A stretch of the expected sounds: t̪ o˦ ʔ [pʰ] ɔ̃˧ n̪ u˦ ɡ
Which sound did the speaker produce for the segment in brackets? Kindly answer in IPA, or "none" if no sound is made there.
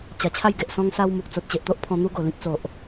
pʰ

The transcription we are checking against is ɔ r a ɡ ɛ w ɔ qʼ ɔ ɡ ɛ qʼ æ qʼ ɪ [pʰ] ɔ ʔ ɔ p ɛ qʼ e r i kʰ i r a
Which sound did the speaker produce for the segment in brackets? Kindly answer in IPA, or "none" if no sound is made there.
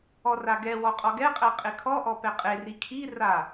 kʰ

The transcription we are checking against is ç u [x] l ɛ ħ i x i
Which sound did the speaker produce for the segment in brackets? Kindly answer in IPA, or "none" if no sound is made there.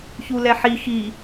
none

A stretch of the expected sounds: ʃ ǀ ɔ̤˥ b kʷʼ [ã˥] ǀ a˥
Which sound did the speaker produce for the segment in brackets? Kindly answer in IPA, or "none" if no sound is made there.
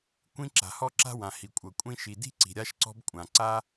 ã˩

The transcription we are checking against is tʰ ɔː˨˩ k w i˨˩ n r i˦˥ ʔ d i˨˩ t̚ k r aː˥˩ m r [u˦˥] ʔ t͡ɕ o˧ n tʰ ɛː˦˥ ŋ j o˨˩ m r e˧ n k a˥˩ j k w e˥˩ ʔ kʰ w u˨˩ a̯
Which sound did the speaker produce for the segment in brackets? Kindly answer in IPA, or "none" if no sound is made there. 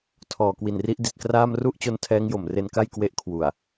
u˥˩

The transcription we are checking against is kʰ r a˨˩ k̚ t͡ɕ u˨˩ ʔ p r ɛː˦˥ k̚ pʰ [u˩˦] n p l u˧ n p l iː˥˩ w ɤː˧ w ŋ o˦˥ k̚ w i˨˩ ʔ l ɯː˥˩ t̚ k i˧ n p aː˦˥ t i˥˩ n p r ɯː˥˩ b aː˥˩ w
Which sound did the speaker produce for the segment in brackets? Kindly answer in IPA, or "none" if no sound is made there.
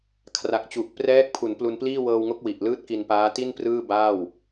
u˩˦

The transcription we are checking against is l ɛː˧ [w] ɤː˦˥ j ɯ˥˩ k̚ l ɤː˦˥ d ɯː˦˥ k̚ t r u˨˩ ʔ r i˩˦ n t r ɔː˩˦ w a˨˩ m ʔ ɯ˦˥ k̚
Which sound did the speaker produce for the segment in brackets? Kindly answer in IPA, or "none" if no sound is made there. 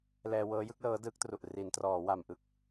w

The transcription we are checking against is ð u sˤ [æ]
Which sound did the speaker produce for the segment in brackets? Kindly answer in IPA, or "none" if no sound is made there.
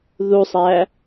æ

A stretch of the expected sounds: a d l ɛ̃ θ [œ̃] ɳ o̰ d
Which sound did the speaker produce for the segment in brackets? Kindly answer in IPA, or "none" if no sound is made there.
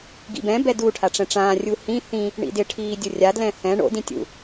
ɛ̃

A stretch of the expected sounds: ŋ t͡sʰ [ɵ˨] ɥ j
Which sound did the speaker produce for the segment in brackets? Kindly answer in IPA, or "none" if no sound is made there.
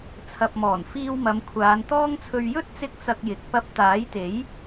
ɵ˧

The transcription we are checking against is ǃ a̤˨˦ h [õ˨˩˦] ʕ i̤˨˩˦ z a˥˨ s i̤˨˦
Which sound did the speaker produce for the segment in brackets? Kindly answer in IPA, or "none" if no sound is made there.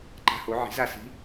o˨˩˦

